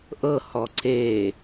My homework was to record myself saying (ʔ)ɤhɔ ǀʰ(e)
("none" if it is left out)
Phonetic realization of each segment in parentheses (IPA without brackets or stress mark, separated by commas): ʔ, e